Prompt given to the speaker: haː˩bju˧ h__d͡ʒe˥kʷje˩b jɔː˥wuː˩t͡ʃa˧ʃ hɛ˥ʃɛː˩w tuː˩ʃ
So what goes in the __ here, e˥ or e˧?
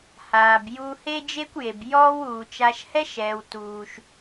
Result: e˥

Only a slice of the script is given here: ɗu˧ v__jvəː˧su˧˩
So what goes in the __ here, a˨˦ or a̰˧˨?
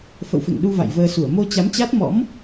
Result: a̰˧˨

